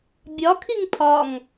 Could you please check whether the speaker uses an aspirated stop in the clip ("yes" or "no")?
yes